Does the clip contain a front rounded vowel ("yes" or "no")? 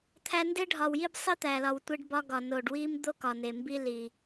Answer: no